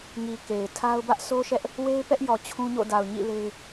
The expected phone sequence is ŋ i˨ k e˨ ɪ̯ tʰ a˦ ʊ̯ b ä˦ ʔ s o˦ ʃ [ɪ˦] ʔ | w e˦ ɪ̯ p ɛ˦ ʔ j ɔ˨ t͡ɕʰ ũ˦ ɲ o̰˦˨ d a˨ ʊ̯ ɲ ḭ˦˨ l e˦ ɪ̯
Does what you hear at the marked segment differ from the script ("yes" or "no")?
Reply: yes